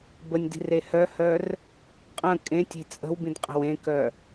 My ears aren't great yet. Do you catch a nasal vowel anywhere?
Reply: yes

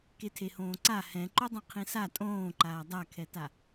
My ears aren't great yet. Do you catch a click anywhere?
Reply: yes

